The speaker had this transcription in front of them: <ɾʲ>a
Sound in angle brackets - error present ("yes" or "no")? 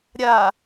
no